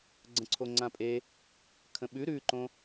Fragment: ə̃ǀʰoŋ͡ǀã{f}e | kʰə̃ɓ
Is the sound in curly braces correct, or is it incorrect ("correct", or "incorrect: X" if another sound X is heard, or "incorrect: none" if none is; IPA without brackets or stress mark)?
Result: incorrect: pʼ